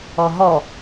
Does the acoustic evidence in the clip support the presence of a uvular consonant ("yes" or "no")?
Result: no